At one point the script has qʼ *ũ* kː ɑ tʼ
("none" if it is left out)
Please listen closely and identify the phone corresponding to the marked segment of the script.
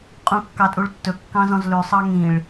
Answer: ũ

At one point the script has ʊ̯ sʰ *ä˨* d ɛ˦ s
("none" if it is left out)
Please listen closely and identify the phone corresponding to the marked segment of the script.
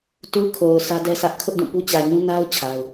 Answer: ä˦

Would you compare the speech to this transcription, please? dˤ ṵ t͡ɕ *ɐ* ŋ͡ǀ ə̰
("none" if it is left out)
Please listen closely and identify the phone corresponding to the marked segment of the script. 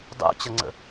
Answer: ɐ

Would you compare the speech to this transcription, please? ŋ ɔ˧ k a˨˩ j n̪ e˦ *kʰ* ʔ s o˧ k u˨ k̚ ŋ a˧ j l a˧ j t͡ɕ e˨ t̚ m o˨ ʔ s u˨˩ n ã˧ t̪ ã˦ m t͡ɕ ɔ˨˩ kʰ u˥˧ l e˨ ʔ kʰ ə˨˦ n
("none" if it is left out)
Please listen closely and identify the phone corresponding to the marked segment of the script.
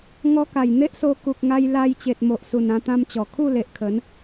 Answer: none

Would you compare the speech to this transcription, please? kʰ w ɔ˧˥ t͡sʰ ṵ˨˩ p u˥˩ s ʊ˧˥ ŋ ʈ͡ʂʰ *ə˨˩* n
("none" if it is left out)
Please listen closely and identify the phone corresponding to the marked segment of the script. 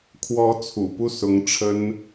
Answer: ə˥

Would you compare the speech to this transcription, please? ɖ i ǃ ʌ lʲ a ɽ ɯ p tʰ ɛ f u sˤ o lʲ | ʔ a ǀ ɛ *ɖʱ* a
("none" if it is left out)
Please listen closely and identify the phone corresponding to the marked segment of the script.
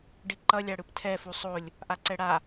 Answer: ɽ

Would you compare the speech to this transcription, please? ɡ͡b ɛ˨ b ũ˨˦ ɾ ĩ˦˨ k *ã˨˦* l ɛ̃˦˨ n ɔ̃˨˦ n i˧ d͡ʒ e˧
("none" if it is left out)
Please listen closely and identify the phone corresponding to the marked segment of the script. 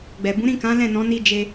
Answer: ã˨˦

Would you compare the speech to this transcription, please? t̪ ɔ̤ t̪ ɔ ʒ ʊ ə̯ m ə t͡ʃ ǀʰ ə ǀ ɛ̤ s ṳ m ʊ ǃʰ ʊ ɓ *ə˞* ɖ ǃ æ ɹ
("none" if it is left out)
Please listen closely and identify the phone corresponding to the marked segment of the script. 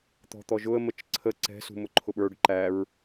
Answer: ə˞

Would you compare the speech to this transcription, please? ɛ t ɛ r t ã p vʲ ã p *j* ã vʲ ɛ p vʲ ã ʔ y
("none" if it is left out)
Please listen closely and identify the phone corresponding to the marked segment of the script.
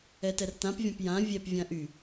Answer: j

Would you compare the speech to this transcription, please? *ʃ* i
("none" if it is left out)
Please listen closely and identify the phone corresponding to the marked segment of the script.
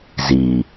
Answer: z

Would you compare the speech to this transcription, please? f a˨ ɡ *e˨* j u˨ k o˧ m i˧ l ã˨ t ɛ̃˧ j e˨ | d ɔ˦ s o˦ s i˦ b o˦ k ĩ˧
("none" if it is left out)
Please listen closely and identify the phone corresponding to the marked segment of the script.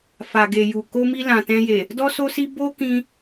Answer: e˨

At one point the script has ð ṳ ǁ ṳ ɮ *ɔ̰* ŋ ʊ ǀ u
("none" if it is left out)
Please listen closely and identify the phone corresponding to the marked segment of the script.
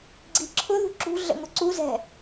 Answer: ə̰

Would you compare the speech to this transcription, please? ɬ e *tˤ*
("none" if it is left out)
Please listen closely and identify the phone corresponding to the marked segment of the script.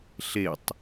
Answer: tˤ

